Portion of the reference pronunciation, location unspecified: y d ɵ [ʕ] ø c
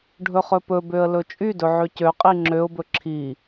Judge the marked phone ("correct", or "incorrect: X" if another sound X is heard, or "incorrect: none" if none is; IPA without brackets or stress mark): correct